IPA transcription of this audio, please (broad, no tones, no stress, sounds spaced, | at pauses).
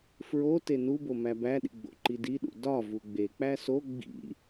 f ɹ o t e n u b o m æ b æ ɗ ḭ ɡ͡b o̰ ǃ i d i ɗ ṵ d ɒ v u ɡ͡b e k͡p æ s o ɡ͡b ḭ